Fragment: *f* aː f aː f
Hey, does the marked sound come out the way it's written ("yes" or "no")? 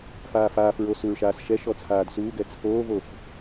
yes